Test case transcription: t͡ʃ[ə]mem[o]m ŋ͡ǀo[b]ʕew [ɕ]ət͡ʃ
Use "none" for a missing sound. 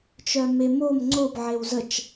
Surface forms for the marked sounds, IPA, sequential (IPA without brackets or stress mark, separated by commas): œ, o, b, z